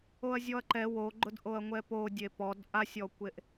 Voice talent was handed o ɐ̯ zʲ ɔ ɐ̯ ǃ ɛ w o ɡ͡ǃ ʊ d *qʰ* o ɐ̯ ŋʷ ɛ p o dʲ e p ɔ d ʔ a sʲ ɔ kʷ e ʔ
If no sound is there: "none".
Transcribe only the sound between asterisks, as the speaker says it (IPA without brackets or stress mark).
ʔ